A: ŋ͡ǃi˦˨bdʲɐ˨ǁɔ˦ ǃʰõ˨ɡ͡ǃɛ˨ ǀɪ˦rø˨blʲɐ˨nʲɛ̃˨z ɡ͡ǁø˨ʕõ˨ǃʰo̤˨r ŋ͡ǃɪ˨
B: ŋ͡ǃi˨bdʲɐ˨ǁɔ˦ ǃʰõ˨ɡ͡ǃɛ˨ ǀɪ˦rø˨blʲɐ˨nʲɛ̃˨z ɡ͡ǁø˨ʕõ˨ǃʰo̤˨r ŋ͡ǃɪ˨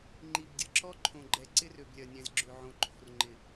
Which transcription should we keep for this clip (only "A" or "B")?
B